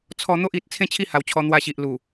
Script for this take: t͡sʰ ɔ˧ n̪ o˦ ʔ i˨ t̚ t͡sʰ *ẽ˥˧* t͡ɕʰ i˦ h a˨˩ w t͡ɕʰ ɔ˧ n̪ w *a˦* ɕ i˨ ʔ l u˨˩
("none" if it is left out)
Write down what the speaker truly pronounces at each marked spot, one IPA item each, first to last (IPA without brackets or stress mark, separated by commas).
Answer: ẽ˥˧, a˧